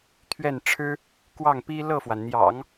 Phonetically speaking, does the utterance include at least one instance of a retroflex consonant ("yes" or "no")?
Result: yes